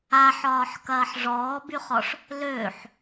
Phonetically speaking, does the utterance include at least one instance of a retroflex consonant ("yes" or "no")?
yes